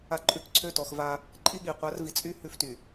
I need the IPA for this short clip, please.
a˦ ǃʼ ʉ˦ k ǀʰ ø˦ t ɔ˨˦ x v a˦ | ǃʼ i˦ ɠ i˨ qʷ a˨˦ r v i˨ t͡sʼ y˦ h ʉ˦ f t y˨

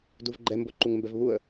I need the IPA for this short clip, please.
d u v ɡ͡ǃ ɛ m b o ǃ u ŋ m b ɛ v β u ə̯

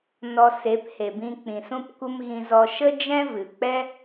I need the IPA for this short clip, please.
n ɔ˧ s e˨˦ p h e˨ b ĩ˧ k͡p ĩ˨ s ũ˧ p kʷ ə˧ m ɣ ĩ˧ z ɔ˧ ʃ ə˦ d͡ʒ ɛ̃˦ v ɨ˨ k͡p ɛ˦

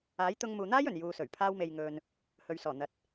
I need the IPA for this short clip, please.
aː˨˥ j t̪ ʊ˧ ŋ m uː˨ n̪ aː˥ j ɵ˨˩ n j uː˨ s ɵ˨˩ ɥ pʰ aː˧ w m e˨ j ŋ ɵ˨ n | h ɵ˨ ɥ s ɔː˨˩ n̪ ɐ˨ t̚

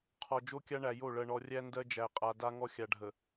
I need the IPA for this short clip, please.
qʰ ɔ˨ d͡ʒ o˦ kʲ a˦ ɳ æ˨ j o˦˨ ɭ ɜ˨ ɳ ɔ˨ rʲ æ˦ n d ɜ˦ d͡ʒ æ˨ qʼ a˨ d a˦ ŋ ɔ˦ xʲ a˨ ɖʱ ə˨

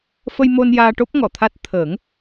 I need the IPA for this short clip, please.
f ə˧ j m o˧ n j aː˧ ʈ o˦˥ p̚ ŋ ɔ˨˩˨ t̪ʰ a˦˥ t̚ t̪ʰ əː˨˩˦ ŋ

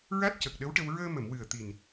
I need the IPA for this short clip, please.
ɹ a˦˥ t̚ c ə˨˩ k̚ ɗ ə˧˥ w ʈ ə˧ w ɹ əː˧ m ə˨˩˨ m w ɨ˨˩ ə̯ t̪ i˨˩ n

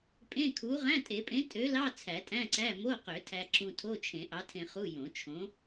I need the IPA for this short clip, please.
pʼ ẽ˧˥˧ kʰ u˨˥ ʁ æ̃˧˥˧ tʼ e˨˩˦ pʼ ẽ˨˥ tʼ ø˨˥ l ɑ˧˥˧ t͡sʰ æ˨˩˦ tʼ æ̃˧˥˧ ǀ æ˧˥˧ m o˧˥˧ q ø˨˩˦ tʰ æ˧ ǁ ũ˧ tʰ o˧˥˧ t͡ʃʰ ẽ˨˩˦ ʔ ɑ˨˥ tʰ ẽ˧ χ u˧˥˧ j õ˨˩˦ t͡ʃʰ õ˨˥

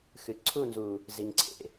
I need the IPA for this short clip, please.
x ɨ˨ ǀʰ u˦˨ n z u˨ | z i˨ ŋ ǀʰ ḛ˨

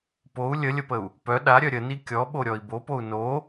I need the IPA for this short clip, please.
p o u̯ lʲ ə lʲ ə p ə u̯ | p œ ɗ a ɾʲ œ ɾʲ ə n i kʲ ɔ ɓ o ɾʲ ɔ i̯ b o p o u̯ n o

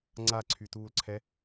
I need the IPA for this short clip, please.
ŋ͡ǀ a ǀʰ y t uː l ǀʰ ɛ

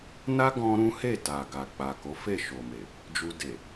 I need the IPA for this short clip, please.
n a˦ ɡ ɔ̃˧ ɾ ũ˦ h e˦˨ t a˨ ɡ a˨ k͡p a˨ k o˨˦ f e˦˨ ʃ o˨ m e˨ | d͡ʒ u˧ d e˨

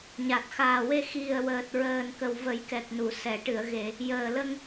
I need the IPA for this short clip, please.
ɲ a˨˩ t̚ x aː˨˩ w e˧ x i˨˩ ə̯ w əː˨˩ t̚ ɹ əː˨˩ n k ə˨˩ w v ə˨˩˦ j k ɛ˨˩ k̚ n u˨˩˨ s ɛ˨˩˨ ʈ ɨ˨˩˨ ə̯ ɣ e˨˩˨ | j əː˨˩ l ə˧ ŋ

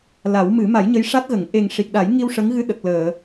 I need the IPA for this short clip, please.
l a˨˩˦ w m ɨ˨˩˦ m a˨˩˦ j ɲ ə˧˥ j ʂ a˦˥ t̚ ɣ ə˨˩˨ ŋ ʔ e˨˩ ŋ ʂ i˨˩ k̚ ɗ a˨˩˦ j ŋ i˧ w ʂ ə˧˥ ŋ ɣ ɨ˧ ɗ ə˨˩ k̚ l əː˨˩˨

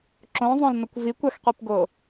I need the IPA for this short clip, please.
ǁ õ zˤ õ l n o kʷ v i kʷ a x qʷ i p ɡ o

